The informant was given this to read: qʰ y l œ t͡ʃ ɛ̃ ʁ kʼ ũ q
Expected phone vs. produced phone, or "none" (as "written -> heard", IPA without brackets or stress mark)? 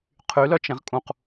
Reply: none